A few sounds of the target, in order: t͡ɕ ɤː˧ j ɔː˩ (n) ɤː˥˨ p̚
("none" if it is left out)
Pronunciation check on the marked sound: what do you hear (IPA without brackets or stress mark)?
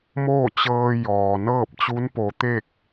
n